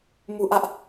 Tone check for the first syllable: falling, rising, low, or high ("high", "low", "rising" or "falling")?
low